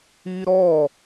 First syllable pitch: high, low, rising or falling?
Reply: high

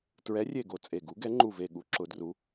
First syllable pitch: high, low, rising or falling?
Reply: rising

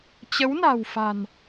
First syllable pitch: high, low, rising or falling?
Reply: rising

